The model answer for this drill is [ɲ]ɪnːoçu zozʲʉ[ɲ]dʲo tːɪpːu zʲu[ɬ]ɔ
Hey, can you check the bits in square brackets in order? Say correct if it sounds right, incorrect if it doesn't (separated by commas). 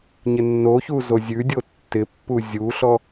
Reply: correct, incorrect, correct